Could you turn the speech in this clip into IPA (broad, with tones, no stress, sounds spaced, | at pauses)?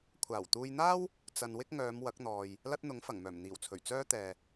kʷʰ aː˨˩ w t̪ uː˧ j n̪ aː˥ w | t͡s ɐ˨ n w ɪ˥ k̚ ŋ œː˨˧ m w ɐ˨˥ k̚ n̪ ɔː˨ j | l ɐ˥ t̚ n̪ ʊ˨˥ ŋ f ɐ˨˩ ŋ m œː˨˩ m n̪ iː˨˩ w t͡sʰ ɵ˨˩ ɥ t͡s œː˥ t̪ ɛː˨